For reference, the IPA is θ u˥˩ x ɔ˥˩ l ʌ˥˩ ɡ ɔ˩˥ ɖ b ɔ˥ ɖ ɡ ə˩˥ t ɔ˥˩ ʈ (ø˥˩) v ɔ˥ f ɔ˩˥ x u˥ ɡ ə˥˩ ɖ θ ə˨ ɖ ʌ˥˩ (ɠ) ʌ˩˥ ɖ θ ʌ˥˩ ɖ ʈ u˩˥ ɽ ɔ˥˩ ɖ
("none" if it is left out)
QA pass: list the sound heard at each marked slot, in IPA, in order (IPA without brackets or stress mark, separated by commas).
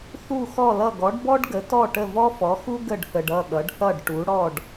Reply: ə˥˩, ɠ